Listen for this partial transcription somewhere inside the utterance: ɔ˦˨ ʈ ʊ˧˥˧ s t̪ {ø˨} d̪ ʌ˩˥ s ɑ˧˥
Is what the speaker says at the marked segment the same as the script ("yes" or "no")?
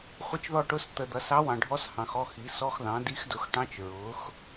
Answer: no